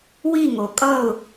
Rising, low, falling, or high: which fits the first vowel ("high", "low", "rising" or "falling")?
falling